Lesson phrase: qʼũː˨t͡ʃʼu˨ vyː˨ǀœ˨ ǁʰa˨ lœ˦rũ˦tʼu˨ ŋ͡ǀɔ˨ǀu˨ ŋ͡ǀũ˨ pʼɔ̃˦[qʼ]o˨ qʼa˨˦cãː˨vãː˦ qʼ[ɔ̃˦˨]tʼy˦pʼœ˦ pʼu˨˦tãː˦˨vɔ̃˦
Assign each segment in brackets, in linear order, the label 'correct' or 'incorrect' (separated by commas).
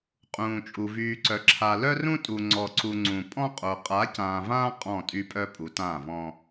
correct, correct